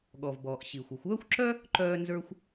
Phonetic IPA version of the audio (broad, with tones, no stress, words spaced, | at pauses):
ɠɔ˩vbɔː˩ʔ ɕi˩xʷə˩xʷœː˥xʷǁœ˥ | ǃœː˥nzə˞˥xʷ